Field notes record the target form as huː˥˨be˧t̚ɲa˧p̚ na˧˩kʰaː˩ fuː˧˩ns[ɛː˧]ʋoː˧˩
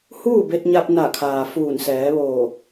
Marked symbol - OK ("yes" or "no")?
no